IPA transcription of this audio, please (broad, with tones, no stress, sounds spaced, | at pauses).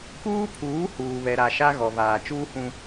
k uː˦ pʰ uː˨˦ h uː˨ β ɛ˨ ɾ a˨ ʃ a˦ ɣ ɔ˨ v aː˨ t͡ʃ uː˦ h ũ˦